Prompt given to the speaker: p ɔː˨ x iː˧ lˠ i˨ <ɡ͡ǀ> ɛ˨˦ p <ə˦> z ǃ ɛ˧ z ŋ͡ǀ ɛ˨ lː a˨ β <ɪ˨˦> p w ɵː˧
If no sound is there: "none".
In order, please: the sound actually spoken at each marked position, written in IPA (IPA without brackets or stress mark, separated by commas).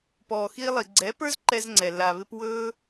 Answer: ɡ͡ǀ, ə˞˦, ɪ˧